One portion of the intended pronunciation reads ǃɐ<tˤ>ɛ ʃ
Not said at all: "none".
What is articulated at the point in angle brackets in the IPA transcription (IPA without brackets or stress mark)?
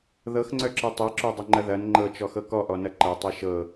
tˤ